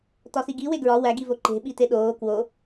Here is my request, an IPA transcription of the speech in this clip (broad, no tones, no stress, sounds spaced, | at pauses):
t ɒ s i ɡ i w e ɡ ɹ ɒ w æ ɡ i v o ǃ e̤ ɓ i t e ɗ oː k w o